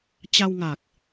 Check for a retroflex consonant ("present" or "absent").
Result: absent